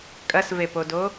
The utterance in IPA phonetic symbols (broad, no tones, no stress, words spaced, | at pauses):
kʼɐsvepodo